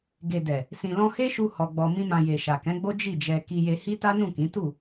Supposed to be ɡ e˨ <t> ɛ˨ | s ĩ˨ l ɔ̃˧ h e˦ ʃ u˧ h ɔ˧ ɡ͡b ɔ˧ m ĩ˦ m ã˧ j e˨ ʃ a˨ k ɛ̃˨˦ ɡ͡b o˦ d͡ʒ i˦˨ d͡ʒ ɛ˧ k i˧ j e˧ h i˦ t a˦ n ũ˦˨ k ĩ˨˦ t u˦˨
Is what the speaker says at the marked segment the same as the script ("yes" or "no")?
no